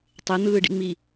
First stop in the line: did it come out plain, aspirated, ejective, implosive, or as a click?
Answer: plain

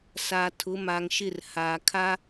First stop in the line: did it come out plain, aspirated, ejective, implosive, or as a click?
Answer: aspirated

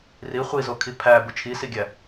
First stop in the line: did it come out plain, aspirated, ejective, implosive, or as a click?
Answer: aspirated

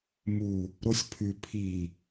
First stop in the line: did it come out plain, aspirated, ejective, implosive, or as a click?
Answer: aspirated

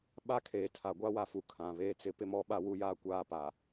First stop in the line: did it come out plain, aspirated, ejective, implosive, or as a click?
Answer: implosive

